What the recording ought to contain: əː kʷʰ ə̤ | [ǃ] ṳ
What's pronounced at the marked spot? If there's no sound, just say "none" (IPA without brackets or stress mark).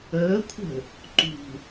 ǃ